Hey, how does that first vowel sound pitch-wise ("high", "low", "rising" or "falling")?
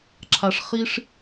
low